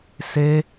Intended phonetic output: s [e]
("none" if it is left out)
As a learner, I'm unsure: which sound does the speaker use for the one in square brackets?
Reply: e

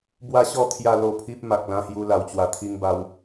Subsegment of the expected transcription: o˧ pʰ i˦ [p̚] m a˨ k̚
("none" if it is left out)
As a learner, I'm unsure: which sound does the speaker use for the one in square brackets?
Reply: p̚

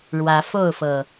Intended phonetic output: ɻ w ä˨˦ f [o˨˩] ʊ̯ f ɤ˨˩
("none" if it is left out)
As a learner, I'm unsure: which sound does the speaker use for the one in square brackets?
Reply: o˥˨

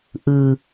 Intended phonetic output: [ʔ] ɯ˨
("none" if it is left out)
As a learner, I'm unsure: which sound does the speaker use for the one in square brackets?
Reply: ʔ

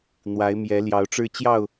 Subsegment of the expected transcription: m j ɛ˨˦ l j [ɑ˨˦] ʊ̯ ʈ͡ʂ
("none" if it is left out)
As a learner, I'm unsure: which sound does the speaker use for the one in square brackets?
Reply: ɑ˨˦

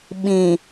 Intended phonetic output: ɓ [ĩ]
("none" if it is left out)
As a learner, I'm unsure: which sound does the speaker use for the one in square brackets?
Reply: ĩ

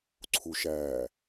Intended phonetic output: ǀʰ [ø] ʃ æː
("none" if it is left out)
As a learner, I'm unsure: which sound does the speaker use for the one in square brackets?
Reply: u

